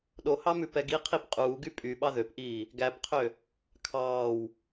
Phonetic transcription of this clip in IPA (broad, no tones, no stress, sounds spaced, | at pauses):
ɗ o h ɑ m ʉ p ɛ ɡ i qʰ i p qʼ uː ɡ y pʼ y ɓ ɑ ð ø p ʔ iː | ɡ æ p qʰ ø | kʰ ɑː w